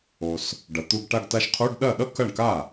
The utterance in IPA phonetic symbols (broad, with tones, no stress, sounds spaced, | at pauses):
o˨ s | ɖ ɐ˩˥ t̪ u˧˥˧ ɡ ʈ a˥˧ ɡ t a˥ ʃ qʰ u˧˥˧ ɖ ɗ ɐ˥˩ ɗ ʌ˥ k ɐ˥˩ ɳ k a˥˩